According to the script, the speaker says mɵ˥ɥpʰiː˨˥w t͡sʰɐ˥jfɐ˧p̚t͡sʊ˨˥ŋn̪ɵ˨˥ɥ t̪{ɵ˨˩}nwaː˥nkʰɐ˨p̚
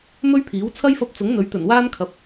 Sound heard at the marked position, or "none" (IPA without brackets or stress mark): ɵ˨˩